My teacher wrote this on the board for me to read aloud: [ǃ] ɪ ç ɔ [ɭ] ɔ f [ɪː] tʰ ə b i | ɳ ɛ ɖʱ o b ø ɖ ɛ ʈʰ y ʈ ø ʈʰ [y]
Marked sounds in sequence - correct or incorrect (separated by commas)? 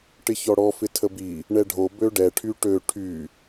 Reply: incorrect, incorrect, incorrect, correct